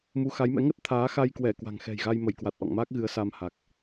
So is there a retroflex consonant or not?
no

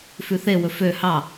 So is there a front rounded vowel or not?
yes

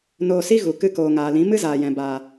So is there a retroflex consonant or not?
no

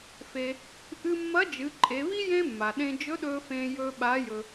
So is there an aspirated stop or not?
no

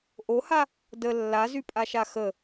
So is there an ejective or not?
yes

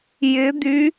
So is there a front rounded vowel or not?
yes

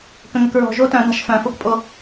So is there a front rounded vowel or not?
yes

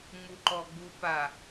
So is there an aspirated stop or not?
no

